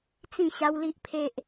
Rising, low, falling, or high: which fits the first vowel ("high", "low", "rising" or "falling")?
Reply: falling